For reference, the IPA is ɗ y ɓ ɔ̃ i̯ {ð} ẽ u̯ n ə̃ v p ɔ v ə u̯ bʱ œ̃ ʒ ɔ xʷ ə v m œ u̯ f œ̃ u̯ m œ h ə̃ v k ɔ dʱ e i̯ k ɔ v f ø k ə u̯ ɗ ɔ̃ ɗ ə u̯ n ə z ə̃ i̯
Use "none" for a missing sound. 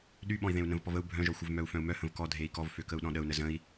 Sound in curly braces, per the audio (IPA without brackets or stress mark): ð